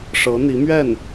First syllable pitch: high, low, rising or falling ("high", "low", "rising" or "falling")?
rising